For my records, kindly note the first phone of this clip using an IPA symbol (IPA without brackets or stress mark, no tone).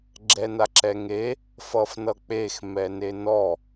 ɡ͡ǁ